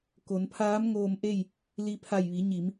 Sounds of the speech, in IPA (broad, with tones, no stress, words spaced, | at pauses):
ko˩˧npʰaː˧˥mŋoː˧mʔe˥˨j | li˧pʰa˧˩jʋi˩˧ ɲi˩˧m